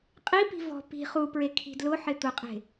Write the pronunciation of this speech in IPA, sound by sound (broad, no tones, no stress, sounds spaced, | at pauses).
qʼ i p i̤ v ɔ̤ p i̤ χ u p ɹ e kʰ i̤ d l ʊ ħ ɪ t̪ ʊ qʼ e̤